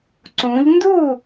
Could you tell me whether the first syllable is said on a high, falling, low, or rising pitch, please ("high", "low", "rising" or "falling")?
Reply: rising